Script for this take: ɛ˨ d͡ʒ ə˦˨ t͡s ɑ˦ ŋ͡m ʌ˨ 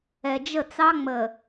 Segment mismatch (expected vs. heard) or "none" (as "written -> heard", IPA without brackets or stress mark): ʌ˨ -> ə˨